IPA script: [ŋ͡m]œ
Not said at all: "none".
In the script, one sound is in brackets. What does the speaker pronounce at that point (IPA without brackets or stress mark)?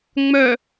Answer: ŋ͡m